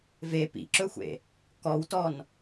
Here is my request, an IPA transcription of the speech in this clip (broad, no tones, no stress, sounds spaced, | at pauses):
v e p ḭ ǁ ɵ xʷ ḛ | k ɔ w t ɔ n